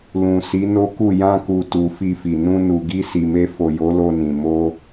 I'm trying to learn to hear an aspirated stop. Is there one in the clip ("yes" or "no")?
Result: no